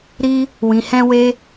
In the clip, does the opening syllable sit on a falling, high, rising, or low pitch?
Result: high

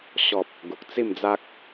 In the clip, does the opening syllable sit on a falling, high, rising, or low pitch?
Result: low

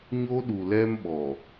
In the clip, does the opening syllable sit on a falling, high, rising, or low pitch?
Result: high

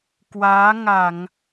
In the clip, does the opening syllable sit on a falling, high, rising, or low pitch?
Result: rising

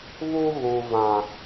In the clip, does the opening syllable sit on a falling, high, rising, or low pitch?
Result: high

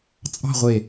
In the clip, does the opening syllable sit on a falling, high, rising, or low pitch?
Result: falling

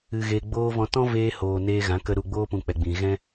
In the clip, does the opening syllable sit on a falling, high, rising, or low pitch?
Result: low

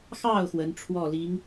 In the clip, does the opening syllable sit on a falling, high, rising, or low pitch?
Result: falling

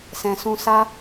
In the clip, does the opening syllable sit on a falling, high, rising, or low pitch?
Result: low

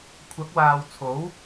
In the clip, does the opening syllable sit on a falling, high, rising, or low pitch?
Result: rising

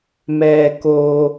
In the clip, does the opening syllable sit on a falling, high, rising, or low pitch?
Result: low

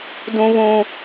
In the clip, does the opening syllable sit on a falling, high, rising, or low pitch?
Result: high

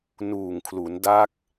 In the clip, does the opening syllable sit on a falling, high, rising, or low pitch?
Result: low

